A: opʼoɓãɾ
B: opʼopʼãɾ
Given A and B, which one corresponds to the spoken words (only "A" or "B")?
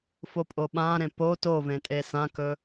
A